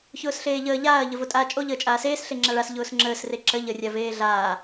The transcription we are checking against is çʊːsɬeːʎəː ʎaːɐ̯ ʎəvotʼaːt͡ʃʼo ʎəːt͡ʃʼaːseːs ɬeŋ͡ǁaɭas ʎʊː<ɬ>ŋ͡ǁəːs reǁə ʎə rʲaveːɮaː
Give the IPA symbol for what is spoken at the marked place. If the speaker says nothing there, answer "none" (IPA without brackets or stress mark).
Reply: s